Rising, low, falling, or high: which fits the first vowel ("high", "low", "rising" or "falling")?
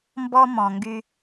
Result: high